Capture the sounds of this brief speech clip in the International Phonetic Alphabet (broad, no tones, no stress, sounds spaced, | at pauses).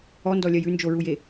ɔ n d ɔ lʲ ɜ j ʉ n d͡ʒ o ɹ u j e